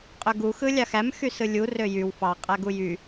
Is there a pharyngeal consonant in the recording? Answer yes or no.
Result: no